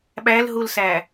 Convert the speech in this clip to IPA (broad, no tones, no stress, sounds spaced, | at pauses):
ɓ æ l ɦ u l s æ